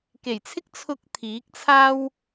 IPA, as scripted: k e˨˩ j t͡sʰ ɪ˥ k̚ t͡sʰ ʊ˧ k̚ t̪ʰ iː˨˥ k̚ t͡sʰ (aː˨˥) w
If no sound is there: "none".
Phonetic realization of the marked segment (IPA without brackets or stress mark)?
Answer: aː˥